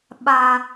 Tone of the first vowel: low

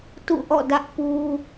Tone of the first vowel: falling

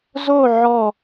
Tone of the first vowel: falling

